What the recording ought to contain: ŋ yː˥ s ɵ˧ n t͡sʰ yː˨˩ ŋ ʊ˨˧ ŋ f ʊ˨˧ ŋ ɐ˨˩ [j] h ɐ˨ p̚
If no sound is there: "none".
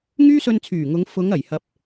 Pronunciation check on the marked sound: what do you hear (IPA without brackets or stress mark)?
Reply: j